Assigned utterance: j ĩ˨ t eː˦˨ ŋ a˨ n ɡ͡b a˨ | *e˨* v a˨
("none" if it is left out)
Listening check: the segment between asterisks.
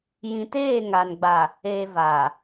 e˨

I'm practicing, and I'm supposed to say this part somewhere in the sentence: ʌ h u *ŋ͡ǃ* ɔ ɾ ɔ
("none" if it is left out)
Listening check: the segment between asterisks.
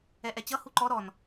ǃ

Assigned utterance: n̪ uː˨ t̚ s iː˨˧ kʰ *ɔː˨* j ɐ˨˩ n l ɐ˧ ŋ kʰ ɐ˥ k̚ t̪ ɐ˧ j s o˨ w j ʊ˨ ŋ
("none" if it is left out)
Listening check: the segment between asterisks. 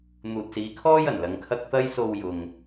ɔː˥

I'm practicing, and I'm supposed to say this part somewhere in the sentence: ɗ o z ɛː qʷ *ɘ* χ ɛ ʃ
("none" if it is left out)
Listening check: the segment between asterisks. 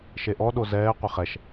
ɘ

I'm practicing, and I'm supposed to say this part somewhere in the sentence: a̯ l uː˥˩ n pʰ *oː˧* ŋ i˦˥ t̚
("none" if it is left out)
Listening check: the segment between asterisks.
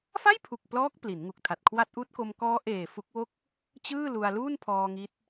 ɔː˧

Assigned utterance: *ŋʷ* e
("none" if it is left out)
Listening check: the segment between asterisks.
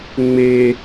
ŋ͡m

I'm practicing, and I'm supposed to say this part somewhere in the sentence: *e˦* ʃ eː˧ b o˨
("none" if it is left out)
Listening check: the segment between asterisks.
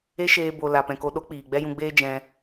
e˦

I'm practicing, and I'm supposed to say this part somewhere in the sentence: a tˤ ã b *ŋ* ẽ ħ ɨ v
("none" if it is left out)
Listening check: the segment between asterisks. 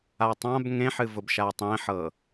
ŋ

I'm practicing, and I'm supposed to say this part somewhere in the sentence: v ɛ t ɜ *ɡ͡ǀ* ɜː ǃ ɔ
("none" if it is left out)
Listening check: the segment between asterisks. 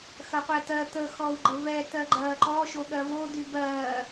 ɡ͡ǃ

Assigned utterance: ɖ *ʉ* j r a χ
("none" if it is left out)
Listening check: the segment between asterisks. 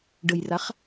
ə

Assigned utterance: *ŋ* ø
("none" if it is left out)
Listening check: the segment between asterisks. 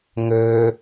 ŋ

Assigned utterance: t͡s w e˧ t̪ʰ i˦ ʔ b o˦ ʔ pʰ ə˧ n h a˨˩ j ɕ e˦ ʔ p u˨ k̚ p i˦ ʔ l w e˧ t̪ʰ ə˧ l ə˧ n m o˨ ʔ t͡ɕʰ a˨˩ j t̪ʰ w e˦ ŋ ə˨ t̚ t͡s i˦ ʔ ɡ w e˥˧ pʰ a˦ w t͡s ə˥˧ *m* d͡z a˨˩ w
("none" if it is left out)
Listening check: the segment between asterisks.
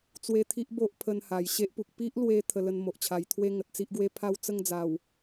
ŋ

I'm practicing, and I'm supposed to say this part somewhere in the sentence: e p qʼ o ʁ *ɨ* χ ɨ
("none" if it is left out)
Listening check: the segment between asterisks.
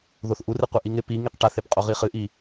i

